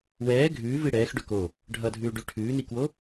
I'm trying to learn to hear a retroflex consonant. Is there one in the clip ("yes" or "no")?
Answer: yes